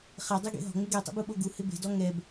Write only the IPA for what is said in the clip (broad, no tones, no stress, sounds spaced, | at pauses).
χ ɛ dˤ i ɡ ḛ ɦ ɔ̤ ŋ͡m ɪ ɡ ɛ tˤ ḭ b u ɓ o ɡ u h ɪ b e̤ d ɔ ŋ ɛ b